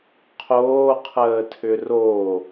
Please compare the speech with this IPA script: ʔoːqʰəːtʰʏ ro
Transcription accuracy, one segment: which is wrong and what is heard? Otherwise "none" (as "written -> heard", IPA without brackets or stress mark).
ʔ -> qʰ